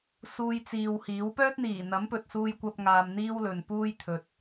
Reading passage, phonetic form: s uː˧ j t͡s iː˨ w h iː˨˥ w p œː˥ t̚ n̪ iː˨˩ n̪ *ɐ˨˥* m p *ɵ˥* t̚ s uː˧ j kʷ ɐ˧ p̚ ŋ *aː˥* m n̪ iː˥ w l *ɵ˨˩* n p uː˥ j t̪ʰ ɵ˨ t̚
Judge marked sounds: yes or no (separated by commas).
yes, no, no, no